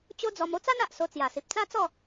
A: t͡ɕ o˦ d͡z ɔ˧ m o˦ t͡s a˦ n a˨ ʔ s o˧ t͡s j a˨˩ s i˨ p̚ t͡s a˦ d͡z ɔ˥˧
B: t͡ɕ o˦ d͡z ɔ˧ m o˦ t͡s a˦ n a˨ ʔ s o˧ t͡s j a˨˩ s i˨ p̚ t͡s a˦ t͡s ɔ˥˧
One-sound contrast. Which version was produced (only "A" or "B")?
B